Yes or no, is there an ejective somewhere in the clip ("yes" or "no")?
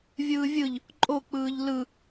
yes